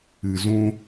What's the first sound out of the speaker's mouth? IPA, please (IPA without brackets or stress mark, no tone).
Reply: ɨ